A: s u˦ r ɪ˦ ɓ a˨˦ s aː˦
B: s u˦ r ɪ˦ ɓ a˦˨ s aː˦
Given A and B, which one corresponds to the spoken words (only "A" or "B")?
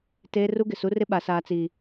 A